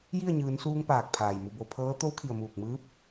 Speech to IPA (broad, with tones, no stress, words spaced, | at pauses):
ji˥˨ə̯ɲɯː˩˧nsuː˧ŋ paː˧˩k̚pʰaː˩jmu˩˧ bo˩˧pʰɤː˧˥ t̪o˧˥wkʰi˩ə̯ muː˧˩k̚mɯː˧˥p̚